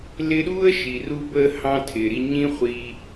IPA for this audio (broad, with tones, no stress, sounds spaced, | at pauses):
l ɪ˦ ɗ uː˥ ə̯ ʃ i˩ r u˦ b əː˦ h ɑ̃˥ tʰ ɪː˩ ɾ i˦ ɲ ĩ˦ χʷ i˨